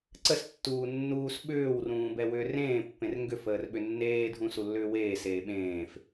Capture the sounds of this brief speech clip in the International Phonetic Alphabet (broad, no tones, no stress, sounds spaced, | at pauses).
ǀ ə s tː uː nː uː s ɓ ʏː w r ũː b ɛ w ʏː r ẽː pː ẽ r ŋ ɡ ʏ f əː r ɓ ʏ nː eː dʱ ũ s u lː ʏː w eː s eː ɓ ẽː f